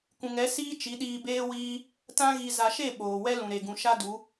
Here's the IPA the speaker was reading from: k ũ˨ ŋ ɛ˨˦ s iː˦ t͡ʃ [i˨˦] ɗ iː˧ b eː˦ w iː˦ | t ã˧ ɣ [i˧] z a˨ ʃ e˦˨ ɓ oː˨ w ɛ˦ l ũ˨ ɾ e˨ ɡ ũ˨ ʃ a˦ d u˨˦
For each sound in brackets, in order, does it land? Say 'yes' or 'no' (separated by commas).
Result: yes, no